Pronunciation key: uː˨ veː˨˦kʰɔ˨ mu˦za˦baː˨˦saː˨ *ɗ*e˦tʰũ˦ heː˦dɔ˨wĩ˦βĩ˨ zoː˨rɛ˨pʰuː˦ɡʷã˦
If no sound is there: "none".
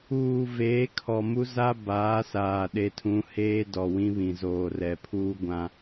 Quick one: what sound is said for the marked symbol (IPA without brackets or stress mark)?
ɗ